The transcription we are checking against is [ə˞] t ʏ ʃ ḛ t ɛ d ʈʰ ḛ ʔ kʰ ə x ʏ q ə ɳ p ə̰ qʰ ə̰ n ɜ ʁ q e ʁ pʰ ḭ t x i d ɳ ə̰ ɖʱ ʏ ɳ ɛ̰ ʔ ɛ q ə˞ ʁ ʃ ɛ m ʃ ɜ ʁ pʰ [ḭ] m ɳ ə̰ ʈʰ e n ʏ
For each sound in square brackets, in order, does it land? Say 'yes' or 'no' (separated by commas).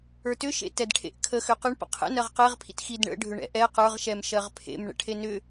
yes, no